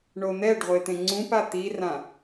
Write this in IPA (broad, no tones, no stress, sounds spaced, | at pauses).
ɳ o n̪ ɛ ɖ ʁʷ e t̪ ẽ ŋ͡ǀ ũ p a t̪ i r ã